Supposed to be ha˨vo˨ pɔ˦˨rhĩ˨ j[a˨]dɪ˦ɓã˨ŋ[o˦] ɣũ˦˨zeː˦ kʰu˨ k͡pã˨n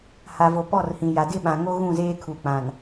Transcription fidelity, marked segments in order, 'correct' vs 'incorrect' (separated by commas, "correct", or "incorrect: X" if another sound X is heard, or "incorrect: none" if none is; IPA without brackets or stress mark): correct, correct